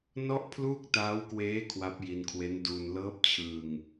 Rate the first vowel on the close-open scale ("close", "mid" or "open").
mid